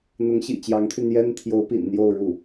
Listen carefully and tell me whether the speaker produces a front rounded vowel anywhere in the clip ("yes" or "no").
yes